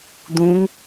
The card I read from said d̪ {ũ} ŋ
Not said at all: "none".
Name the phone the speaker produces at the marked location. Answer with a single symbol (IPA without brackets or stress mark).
ũ